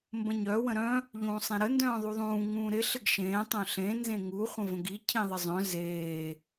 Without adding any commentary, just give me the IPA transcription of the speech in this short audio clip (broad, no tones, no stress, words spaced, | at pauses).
mbə̃ɲœ wə̃ɾœ̃ | ʎũːsˤẽɾə ndœ̃ːðˤuðˤũː ŋũːɾɪ ɬɪɡʃẽː tˤœ̃ɬẽ nzẽŋu χʷə̃və̃ɡi cʰĩðˤɪzˤœ̃ zeː